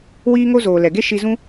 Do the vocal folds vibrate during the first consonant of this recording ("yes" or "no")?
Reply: yes